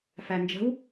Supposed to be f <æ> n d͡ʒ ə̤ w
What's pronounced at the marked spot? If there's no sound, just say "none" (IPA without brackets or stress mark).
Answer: æ